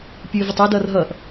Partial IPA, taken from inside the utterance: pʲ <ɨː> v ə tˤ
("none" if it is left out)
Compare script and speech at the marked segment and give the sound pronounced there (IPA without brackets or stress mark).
ɨː